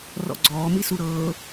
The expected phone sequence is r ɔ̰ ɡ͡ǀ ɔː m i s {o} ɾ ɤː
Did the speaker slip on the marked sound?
yes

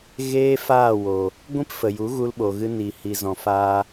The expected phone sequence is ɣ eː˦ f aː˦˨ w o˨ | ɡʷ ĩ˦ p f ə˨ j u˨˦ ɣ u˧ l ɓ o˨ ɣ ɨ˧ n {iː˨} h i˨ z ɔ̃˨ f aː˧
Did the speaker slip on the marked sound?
no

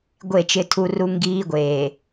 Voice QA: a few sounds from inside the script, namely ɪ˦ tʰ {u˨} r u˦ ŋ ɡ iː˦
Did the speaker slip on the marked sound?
yes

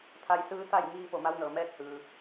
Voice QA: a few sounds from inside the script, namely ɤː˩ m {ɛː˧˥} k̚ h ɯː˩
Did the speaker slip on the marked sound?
no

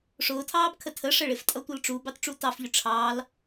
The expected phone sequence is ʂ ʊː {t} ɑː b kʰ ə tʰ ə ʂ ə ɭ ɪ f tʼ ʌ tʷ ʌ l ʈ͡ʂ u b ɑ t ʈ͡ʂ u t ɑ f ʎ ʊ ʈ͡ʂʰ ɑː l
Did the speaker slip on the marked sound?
yes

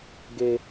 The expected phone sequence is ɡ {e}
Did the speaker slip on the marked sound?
no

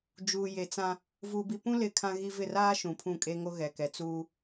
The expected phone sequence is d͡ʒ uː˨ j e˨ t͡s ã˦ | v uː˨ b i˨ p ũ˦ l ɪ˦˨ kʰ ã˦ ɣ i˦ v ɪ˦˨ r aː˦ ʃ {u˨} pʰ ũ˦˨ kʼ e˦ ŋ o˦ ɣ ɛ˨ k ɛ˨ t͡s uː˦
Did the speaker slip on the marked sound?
yes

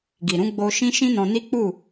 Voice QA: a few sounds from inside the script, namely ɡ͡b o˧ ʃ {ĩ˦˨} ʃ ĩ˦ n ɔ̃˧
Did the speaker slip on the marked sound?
yes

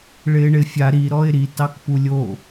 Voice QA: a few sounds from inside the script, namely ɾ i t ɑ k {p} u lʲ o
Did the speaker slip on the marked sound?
no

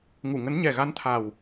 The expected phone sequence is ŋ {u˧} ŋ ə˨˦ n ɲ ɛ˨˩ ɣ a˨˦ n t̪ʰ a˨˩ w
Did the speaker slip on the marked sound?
yes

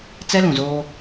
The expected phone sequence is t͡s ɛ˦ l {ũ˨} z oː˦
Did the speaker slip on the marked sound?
no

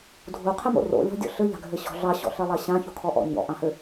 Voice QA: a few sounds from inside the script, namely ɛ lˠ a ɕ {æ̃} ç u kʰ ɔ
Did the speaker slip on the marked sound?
yes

